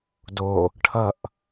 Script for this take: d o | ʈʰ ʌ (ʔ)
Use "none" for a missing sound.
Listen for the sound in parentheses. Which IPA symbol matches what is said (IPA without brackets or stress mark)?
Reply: ʔ